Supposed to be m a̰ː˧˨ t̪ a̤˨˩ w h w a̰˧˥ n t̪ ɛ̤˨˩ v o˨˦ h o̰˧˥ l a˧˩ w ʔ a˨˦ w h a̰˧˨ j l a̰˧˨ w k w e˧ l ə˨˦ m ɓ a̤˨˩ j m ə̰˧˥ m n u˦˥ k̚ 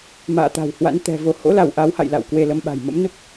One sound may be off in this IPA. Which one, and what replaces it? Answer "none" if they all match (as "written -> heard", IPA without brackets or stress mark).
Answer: none